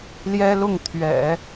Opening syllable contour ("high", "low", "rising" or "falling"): high